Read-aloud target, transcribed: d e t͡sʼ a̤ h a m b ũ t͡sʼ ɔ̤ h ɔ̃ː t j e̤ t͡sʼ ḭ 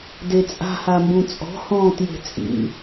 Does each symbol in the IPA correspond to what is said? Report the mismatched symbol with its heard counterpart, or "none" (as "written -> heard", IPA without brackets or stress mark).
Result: none